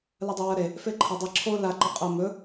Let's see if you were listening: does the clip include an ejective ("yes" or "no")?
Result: yes